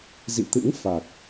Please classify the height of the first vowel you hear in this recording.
high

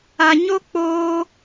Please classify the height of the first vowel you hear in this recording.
low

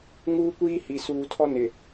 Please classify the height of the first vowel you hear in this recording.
high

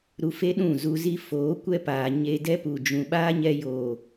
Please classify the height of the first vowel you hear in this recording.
high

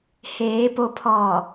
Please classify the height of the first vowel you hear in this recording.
mid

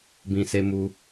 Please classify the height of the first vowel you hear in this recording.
high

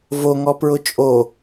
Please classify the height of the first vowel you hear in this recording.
mid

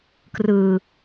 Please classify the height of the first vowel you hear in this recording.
high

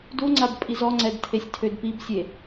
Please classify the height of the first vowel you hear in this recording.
high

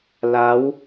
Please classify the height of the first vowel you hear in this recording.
low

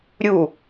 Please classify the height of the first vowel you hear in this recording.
high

